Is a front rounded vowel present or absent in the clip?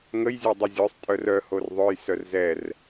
present